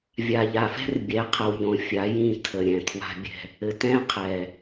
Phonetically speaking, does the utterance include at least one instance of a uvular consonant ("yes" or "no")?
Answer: yes